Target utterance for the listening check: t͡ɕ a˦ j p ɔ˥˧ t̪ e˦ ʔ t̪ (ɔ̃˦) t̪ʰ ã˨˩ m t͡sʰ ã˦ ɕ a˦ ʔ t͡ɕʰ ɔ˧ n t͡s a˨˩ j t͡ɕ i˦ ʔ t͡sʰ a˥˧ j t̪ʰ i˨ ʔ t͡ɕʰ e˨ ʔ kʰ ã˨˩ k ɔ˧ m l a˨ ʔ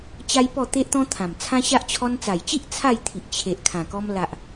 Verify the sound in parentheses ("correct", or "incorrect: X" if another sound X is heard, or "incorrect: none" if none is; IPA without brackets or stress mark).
correct